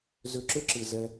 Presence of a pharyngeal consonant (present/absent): absent